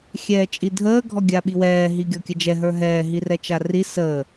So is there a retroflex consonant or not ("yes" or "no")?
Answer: no